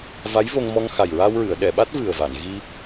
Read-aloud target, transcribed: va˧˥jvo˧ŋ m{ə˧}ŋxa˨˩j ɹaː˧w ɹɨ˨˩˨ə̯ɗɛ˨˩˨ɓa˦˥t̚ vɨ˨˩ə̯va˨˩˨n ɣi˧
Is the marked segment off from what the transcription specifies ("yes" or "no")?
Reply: yes